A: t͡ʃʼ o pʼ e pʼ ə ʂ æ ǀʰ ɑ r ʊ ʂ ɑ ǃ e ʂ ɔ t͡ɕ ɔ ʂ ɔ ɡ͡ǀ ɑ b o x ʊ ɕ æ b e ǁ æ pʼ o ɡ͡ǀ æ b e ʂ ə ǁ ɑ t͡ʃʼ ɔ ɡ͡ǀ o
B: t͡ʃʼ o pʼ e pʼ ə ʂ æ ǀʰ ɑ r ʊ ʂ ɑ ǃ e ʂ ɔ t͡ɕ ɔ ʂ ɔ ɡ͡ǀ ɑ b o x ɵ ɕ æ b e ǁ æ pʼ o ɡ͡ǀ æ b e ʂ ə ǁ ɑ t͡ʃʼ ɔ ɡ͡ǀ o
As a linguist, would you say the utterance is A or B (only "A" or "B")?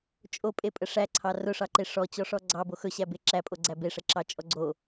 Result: B